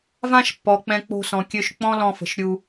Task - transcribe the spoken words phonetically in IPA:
v ã˦ ʃ pː ɔ˨ k͡p ɛ̃˧ k͡p o̤˧ s ɔ̃˨ kʲ ø˧ ʃ k͡p ɔ̃˦ l ɔ̃˧ f ə̤˨ ʃ ɾʲ u˧

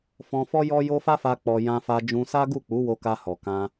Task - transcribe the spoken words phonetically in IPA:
f ɔ̃˧ f ɔ˦ j ɔ˦ j o˦ f a˦ f a˧ k͡p ɔ˨ j ã˧ f a˧ d͡ʒ ũ˧ s a˦ ɡ u˦˨ k͡p u˨˦ w o˧ k a˧ h ɔ˨ k ã˧

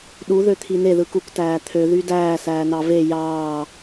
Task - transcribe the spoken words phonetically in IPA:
ɗ u ð ø t̪ʰ i n e ð ɯ k u k t æː t̪ʰ ø ð y d æː s æː n ɑ v e j ɑː

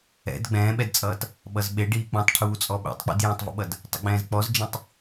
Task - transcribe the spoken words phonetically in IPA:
ɛ̰ d ɡ͡b ɛ̃ː ɓ ɛ d t͡sʼ ʌː t | ɓ ʌ z ɓ e ɖ iː k͡p ũ tˤ ʈʰ uː t͡sʼ ɔ ɓ ḛ tˤ k͡p ḭ d j ɛ̃ tˤ v ə̰ ɓ ʌ d | tˤ ə̰ ɡ͡b ɛ̃ː z k͡p ɔ z d͡ʒ ĩ tˤ

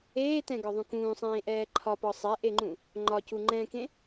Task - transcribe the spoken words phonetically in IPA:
eː t ɛ̃ ɡ ɒ ðˤ ũ k ũː sˤ ẽː ʔ ɛː ǃʰ ɒ p ɒ sˤ ɛ ʔ e ŋ͡ǃ ũ | ŋ͡ǃ ɒ c u ŋ͡ǃ ɛ̃ k ẽ

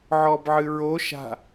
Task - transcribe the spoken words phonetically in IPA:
ʕ ɔ b ʕ ɨ ɹ o ʃ a̤

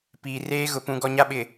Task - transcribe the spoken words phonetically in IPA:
p iː˨ r eː˦ ɣ ʊ˨ p ũ˦ ɡ ɔ˦ ɲ a˦ ɓ ɪ˨

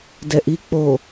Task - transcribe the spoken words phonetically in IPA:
d ɛ ʔ i k͡p o

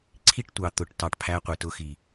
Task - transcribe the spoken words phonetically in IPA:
ǀʰ i˦ ʈ tʷ ɑ˨ t̪ ʊ˨ ʈ t ɑ˨ ʈ pʰ æ˧ qʷ ɪ˨ t ʊ˧ x i˨

